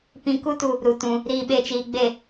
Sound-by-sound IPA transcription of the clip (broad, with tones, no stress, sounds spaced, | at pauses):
p ĩ˦ k u˦ t u˧ | ɾ u˧ t ũ˧ | ɾ iː˧ ɓ e˧ t͡ʃ iː˨ ɡ͡b e˦˨